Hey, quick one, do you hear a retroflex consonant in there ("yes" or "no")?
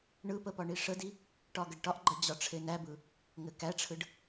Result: yes